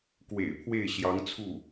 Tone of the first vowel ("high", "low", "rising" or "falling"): low